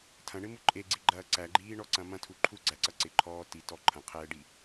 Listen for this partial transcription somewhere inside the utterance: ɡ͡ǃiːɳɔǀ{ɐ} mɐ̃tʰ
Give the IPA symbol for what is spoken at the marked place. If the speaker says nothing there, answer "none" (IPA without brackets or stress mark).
ɐ̃